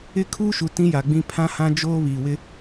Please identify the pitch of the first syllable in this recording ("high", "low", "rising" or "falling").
falling